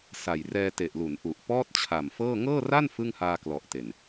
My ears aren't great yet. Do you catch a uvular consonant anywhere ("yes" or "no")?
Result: no